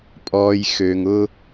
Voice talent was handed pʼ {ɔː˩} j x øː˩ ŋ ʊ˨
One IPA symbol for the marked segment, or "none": ɔː˩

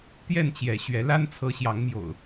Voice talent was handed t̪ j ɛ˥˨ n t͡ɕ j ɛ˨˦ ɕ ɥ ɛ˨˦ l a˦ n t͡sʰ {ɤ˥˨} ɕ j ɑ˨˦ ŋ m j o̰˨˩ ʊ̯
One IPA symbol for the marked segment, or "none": ɤ˨˦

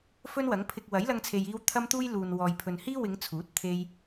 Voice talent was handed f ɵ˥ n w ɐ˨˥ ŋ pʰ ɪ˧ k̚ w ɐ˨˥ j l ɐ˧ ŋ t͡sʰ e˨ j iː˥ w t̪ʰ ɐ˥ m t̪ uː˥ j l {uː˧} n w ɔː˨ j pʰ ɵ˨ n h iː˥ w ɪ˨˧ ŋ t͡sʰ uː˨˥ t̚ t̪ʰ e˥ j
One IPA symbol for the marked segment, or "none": uː˨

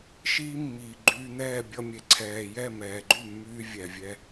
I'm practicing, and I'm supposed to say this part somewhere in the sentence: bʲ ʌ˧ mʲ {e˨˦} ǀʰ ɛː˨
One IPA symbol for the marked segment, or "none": e˨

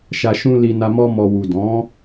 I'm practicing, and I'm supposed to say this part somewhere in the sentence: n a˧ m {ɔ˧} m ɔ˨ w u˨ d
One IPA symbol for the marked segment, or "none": ɔ˧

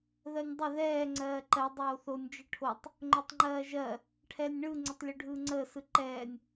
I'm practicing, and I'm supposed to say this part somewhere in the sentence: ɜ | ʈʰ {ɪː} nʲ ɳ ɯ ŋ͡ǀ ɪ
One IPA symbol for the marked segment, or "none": ɛː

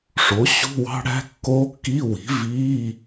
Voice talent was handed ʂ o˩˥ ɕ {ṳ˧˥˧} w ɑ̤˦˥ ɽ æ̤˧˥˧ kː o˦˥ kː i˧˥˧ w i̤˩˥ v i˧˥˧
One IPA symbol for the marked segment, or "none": ṳ˧˥˧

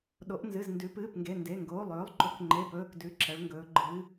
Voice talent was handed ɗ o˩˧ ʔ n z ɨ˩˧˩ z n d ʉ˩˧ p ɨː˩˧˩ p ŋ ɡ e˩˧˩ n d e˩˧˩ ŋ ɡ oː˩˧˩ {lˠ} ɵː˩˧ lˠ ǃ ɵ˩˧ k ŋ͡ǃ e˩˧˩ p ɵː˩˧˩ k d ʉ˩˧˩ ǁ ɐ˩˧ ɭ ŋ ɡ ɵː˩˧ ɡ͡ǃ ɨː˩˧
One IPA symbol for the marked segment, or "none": lˠ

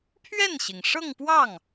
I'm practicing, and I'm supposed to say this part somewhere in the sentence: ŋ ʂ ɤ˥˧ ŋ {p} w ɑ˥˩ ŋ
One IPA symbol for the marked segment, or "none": p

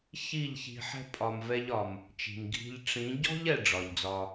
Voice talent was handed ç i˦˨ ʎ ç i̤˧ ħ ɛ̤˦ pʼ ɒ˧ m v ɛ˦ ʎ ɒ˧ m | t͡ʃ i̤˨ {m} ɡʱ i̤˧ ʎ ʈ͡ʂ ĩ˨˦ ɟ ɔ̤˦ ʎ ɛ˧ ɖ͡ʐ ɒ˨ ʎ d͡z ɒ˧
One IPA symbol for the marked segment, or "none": m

